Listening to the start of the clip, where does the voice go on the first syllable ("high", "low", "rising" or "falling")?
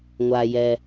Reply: low